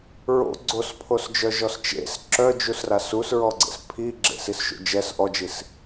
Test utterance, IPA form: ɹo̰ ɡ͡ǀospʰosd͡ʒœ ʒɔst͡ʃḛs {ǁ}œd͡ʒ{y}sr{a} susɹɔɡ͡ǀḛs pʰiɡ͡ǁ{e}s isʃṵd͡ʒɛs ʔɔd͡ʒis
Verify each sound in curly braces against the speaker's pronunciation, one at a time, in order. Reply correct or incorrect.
correct, incorrect: u, correct, incorrect: ḛ

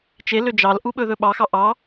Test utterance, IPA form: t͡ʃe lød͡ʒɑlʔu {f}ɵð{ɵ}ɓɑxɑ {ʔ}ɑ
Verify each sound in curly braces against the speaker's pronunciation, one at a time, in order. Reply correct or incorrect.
incorrect: ɓ, correct, correct

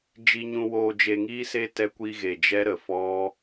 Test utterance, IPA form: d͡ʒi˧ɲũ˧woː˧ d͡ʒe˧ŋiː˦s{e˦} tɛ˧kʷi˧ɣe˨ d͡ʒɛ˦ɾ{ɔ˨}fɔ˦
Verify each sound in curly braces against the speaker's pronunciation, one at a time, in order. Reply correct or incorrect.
correct, incorrect: ə˨

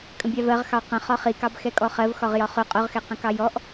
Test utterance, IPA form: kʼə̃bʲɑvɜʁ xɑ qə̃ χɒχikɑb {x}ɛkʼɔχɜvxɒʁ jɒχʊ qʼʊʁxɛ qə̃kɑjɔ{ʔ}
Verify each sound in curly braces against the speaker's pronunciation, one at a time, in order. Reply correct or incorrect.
correct, correct

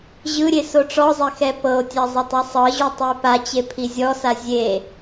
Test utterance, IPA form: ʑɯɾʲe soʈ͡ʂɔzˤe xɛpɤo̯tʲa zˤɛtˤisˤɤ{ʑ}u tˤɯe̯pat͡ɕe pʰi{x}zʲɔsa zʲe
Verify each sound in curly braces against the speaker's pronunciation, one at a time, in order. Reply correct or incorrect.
correct, incorrect: none

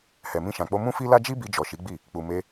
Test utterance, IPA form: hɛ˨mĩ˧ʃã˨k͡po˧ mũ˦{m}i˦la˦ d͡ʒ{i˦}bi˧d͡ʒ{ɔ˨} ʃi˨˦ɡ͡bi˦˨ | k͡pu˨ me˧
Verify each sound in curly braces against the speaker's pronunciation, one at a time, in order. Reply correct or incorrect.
incorrect: f, correct, correct

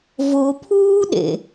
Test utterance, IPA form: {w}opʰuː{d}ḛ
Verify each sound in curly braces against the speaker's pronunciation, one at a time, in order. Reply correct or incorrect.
incorrect: v, incorrect: ɗ

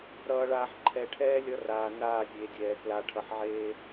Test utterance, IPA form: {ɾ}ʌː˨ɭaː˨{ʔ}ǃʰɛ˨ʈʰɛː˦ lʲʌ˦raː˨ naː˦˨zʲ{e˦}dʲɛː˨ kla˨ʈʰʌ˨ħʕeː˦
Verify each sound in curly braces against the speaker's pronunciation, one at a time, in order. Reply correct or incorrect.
correct, incorrect: ħ, incorrect: e˨

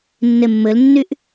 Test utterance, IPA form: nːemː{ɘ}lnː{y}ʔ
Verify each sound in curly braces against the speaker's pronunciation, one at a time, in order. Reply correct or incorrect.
correct, correct

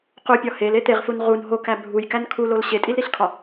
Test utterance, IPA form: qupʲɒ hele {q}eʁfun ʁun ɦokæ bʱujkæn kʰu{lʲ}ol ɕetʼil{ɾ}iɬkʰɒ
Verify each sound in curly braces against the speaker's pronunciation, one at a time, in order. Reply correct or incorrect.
incorrect: t̪, incorrect: l, correct

